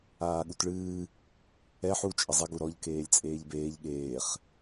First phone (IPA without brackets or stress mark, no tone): aː